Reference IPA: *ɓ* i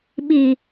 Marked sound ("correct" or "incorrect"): correct